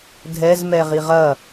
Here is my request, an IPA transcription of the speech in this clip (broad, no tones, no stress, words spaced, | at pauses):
dʱɛz mɛʁiʁɐ